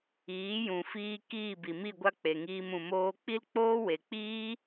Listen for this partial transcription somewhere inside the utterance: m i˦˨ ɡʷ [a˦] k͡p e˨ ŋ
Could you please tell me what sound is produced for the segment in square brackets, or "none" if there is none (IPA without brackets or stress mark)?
a˦